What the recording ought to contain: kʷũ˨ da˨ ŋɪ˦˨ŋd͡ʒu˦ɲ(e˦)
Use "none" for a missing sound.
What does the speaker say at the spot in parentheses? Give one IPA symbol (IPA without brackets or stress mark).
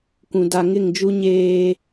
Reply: eː˦